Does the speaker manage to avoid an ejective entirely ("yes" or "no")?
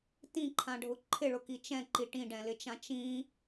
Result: yes